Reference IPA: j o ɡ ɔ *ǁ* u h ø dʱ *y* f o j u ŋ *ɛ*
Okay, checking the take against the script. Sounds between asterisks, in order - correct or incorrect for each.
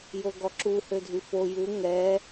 correct, correct, correct

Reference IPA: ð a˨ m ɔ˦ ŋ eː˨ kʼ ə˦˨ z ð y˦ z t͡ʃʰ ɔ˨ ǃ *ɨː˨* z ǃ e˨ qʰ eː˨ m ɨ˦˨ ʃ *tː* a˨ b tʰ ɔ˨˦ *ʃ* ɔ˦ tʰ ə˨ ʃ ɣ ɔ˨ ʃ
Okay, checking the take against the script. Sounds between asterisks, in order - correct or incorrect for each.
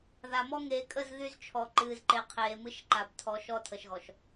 correct, incorrect, correct

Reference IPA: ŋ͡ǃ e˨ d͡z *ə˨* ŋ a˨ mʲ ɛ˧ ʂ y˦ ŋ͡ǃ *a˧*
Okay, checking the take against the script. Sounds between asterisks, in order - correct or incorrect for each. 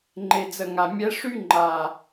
correct, incorrect

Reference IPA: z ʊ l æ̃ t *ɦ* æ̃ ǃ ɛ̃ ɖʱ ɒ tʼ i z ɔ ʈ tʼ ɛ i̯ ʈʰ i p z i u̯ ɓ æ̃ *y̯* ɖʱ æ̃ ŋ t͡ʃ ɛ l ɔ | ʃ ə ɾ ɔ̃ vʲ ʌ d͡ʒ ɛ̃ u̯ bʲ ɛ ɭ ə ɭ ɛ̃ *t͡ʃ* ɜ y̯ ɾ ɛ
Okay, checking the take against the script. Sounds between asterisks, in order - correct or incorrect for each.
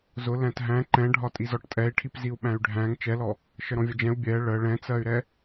correct, correct, incorrect

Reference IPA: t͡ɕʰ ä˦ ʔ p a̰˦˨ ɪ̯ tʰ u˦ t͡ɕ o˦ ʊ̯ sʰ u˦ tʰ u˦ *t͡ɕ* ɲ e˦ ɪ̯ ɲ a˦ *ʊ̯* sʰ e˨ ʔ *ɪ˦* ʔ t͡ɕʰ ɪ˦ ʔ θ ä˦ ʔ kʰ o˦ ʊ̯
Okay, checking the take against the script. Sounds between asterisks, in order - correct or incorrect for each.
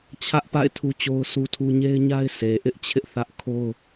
incorrect, incorrect, correct

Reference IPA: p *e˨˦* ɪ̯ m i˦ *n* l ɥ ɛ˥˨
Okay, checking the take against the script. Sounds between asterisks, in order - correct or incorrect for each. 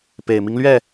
incorrect, incorrect

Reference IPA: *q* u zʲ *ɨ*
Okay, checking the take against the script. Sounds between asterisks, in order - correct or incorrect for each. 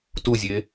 incorrect, incorrect

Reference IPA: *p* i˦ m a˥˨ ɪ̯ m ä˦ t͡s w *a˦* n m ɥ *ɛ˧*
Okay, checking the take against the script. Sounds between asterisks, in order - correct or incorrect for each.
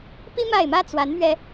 correct, incorrect, correct

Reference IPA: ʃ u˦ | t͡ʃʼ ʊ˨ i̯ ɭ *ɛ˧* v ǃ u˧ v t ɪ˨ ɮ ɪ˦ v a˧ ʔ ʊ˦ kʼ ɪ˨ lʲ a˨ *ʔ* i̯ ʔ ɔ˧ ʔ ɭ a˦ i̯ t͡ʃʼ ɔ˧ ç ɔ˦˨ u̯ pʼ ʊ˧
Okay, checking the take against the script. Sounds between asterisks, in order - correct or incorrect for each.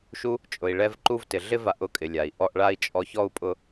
correct, incorrect

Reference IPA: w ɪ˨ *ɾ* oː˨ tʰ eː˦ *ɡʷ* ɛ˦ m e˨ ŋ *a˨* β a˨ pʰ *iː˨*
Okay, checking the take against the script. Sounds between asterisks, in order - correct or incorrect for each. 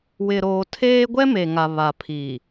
correct, correct, correct, correct

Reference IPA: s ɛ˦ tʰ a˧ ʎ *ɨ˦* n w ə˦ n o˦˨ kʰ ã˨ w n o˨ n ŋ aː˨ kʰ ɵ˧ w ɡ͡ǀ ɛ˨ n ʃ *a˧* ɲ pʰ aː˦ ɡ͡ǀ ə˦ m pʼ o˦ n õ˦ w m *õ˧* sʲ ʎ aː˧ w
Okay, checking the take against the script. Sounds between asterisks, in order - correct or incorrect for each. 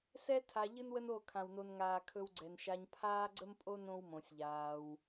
correct, correct, correct

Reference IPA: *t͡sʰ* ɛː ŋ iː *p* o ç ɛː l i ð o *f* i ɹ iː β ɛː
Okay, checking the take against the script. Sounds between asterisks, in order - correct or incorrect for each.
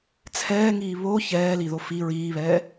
correct, incorrect, correct

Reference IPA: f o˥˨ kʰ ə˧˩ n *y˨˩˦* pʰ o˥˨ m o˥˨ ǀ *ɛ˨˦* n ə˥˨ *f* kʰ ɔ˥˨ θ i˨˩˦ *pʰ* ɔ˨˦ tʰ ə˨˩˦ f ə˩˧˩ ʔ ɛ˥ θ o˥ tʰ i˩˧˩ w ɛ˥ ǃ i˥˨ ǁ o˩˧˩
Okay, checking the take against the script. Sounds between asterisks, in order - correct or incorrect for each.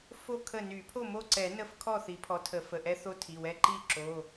correct, incorrect, correct, correct

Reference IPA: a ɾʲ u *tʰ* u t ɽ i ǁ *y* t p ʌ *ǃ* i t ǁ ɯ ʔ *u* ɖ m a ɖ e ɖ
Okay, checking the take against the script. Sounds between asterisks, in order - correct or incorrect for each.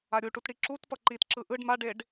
incorrect, incorrect, correct, incorrect

